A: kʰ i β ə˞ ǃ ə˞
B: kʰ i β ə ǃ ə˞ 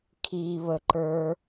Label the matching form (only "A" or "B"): B